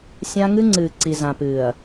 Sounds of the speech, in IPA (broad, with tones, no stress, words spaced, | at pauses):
sʲã˦ ŋɨ˦ŋ͡ǀɨː˨ǀi˨ zã˨pɨː˨ɐ̯